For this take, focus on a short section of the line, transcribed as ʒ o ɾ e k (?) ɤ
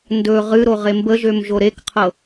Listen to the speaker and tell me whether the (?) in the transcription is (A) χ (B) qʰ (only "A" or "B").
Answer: B